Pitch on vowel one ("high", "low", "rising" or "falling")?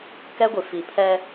high